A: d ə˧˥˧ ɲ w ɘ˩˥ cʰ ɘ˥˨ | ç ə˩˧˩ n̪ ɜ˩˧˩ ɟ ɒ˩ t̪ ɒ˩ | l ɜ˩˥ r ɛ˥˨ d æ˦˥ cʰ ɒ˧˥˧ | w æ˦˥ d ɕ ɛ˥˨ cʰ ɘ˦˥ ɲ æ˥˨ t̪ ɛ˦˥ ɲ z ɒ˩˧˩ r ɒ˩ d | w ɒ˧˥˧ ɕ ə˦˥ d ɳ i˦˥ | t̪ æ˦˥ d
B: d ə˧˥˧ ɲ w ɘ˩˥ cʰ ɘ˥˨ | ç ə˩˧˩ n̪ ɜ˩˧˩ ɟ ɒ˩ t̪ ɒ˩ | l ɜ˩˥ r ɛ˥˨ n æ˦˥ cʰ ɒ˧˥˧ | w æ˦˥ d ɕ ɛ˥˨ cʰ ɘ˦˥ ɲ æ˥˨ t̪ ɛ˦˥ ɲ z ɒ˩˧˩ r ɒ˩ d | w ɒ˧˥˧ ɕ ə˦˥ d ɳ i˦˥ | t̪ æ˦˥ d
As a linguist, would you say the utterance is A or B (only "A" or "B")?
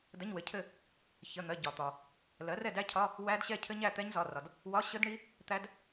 A